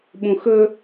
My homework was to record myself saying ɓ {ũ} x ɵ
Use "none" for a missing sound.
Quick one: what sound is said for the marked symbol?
ũ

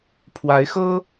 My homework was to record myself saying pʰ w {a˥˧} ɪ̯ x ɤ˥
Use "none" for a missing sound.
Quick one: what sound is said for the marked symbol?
a˧˥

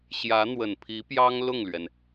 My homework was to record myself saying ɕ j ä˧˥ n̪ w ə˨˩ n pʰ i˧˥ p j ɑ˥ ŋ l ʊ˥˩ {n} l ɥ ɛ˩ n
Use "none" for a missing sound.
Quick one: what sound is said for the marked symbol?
ŋ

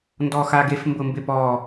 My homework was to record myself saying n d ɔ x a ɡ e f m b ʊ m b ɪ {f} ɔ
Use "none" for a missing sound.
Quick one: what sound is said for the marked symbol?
p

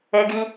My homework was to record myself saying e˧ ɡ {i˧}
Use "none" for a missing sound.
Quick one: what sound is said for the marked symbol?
i˧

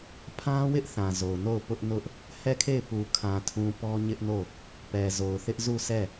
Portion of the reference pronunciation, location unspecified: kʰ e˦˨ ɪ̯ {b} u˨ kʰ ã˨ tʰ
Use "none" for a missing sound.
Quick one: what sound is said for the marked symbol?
p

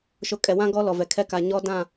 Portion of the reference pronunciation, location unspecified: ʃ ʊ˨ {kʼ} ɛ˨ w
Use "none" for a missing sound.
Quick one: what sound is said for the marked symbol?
kʼ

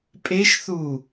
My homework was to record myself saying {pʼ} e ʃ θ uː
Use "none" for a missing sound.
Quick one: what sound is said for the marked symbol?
pʼ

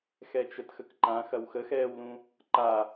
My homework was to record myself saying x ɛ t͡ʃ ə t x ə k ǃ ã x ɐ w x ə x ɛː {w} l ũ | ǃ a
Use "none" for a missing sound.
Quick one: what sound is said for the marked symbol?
w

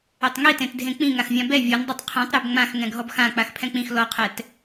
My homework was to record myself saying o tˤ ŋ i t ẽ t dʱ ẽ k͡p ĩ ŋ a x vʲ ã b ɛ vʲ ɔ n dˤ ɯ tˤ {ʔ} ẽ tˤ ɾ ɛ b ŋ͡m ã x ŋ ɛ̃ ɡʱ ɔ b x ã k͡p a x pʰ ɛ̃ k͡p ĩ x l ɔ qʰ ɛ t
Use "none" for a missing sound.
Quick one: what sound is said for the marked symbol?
qʰ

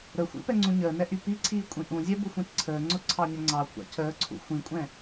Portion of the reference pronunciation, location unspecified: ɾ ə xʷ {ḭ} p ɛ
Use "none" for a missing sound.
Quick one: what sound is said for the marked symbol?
ḭ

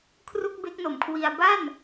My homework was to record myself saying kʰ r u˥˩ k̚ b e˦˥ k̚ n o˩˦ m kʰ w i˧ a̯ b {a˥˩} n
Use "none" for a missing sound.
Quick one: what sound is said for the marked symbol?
a˥˩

